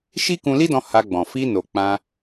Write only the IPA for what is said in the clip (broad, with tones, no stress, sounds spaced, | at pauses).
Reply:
ʃ i˦ k ũ˧ l i˦ d ɔ̃˧ h a˧ ɡ͡b ɔ̃˨ f i˧ n o˨ k͡p ã˧